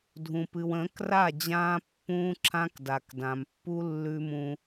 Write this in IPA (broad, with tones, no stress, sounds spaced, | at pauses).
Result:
dʱ ũ˨ p ɨ˨ w ə̃ː˨˦ k r a˦˨ d͡ʑ ãː˦ pː ũː˦ ǁʰ ã˦ k d a˨ k d ã˨ m pː u˦ lː ʉ˦ m ũ˦